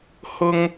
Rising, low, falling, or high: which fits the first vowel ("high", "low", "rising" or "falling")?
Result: high